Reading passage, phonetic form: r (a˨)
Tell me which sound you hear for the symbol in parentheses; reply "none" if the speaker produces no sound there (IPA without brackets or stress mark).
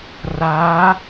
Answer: a˨˦